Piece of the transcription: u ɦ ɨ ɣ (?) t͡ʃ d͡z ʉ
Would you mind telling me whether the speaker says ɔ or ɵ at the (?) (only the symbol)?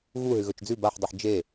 ɵ